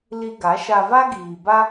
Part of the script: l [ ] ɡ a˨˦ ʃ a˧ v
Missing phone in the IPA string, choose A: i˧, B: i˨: A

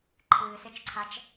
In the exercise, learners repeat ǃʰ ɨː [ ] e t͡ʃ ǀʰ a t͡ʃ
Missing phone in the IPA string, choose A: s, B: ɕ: A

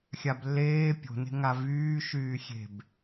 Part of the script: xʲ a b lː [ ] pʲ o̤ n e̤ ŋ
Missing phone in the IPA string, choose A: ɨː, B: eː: B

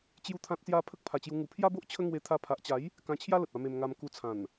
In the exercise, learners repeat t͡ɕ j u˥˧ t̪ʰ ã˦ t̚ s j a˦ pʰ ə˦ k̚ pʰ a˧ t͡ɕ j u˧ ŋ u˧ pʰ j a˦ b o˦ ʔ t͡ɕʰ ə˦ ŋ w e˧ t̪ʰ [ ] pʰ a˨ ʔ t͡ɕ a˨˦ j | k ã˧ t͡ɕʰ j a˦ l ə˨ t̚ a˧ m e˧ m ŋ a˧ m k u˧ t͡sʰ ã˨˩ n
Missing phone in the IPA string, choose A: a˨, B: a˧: B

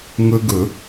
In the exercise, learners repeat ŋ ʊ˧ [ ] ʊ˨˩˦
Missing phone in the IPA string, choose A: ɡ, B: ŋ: A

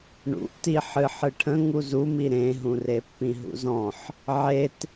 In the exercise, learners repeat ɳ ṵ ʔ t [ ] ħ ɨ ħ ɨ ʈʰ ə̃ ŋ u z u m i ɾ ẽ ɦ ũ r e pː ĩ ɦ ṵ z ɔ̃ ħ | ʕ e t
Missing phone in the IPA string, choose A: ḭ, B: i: B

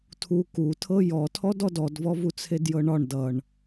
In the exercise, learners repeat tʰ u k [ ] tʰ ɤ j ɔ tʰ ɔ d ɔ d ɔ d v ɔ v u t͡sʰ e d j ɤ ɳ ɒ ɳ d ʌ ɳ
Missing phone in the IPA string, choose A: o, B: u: B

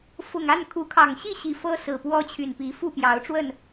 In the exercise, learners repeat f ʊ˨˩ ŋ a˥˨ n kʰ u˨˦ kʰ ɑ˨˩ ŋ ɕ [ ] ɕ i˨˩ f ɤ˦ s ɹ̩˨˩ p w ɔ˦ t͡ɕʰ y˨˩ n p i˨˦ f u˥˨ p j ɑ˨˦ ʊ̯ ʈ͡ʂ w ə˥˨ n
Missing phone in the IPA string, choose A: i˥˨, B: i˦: A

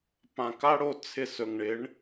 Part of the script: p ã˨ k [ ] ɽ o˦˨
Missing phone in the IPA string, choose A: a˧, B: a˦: B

